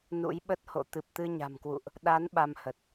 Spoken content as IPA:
n ṵ˧˥ j ɓ ə˦˥ t̚ h o̰˧˨ t̪ ɨ˨˩ p̚ t̪ ɨ˧ ɲ a̤˨˩ m k w ṵ˧˨ ʔ | ɗ a˨˦ n ɓ a˧ m h ə˨˩ t̚

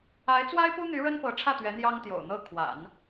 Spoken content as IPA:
a˧˥ ɪ̯ t͡s w a˥ ɪ̯ p u˥ n̪ y˧˥ ɻ ə˥ n p ɤ˧˥ ʈ͡ʂʰ ä˥˩ t̪ ɥ ɛ˧˥ n̪ j ɑ˥ ŋ t̪ j o̰˨˩ ʊ̯ n̪ ɤ˥˩ kʰ w a̰˨˩˦ n

